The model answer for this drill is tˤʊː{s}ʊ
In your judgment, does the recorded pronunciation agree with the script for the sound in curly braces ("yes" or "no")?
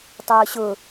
no